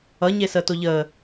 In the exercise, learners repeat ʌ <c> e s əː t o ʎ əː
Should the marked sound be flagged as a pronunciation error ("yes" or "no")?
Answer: yes